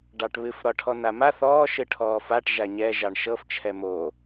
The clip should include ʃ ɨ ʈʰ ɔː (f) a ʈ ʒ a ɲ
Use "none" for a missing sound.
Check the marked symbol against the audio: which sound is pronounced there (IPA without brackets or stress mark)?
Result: f